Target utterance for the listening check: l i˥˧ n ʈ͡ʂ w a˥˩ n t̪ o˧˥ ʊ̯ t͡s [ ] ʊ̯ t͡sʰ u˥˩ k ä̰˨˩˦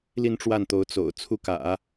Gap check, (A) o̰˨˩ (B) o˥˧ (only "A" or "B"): A